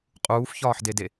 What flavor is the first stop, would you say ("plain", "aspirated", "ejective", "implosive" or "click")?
ejective